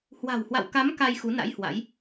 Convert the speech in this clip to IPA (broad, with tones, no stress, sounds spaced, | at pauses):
h w a̤˨˩ w h w a̰˧˨ w k a˨˦ m k a˧ j x u˨˦ n a̰˧˥ j h w a̰˧˥ j